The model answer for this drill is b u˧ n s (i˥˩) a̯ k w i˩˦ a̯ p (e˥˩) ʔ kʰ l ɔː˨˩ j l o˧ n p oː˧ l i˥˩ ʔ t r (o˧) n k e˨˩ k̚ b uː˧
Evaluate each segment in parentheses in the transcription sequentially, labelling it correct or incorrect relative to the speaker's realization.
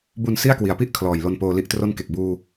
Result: correct, incorrect, incorrect

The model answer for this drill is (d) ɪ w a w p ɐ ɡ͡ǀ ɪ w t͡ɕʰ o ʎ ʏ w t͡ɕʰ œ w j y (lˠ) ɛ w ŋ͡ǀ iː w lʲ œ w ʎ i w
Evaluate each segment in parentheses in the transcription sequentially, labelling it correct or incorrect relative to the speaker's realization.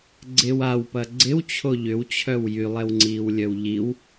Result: incorrect, correct

